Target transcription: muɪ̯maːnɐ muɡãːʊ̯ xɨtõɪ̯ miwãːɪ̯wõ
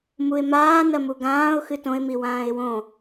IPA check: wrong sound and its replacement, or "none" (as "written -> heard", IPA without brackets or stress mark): none